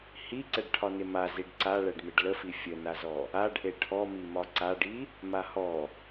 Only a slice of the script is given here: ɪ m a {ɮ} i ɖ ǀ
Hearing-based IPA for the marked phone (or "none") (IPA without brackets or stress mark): z